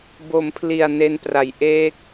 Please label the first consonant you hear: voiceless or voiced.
voiced